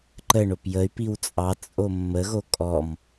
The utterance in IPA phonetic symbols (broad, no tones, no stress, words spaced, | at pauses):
ǃə ɳopjəy̯ piwt͡sʼɑ t͡sʼomːə ɣokʼɔm